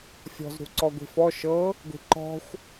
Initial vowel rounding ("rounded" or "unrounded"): rounded